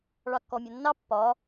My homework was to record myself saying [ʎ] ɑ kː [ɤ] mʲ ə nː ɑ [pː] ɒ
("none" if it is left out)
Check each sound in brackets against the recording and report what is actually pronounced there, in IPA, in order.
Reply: ɭ, ɔ, pː

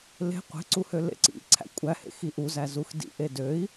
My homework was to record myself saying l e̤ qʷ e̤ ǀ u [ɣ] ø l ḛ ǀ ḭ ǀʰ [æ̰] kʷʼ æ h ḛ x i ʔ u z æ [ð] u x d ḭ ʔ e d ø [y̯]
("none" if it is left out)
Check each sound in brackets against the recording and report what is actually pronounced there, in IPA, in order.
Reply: h, æ̰, z, i̯

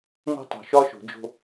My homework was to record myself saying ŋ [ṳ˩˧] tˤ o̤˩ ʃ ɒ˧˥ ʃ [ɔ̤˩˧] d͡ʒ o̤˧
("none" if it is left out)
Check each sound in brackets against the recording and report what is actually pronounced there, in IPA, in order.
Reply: ṳ˧, o̤˩˧

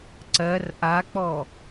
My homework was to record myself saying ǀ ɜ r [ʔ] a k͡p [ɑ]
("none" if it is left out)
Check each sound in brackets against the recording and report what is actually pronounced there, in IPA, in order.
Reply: ʔ, ɔ

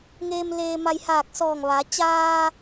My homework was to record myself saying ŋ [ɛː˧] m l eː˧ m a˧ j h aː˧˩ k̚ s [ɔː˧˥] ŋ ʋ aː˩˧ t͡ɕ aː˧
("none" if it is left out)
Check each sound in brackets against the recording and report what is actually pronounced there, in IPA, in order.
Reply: eː˧, ɔː˧˩

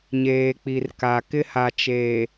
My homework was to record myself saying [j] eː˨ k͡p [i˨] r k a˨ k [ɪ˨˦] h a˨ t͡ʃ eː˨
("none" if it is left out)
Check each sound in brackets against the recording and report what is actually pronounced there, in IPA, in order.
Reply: ɲ, i˨, ɪ˦

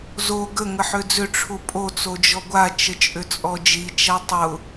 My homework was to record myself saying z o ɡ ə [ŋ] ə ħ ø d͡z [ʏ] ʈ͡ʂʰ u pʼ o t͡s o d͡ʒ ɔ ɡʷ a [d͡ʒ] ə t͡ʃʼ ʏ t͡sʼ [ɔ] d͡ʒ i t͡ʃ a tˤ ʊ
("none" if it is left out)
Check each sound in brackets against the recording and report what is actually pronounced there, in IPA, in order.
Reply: ŋ, ʏ, t͡ʃ, ɔ

